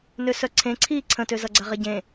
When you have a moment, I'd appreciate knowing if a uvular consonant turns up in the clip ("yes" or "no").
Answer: yes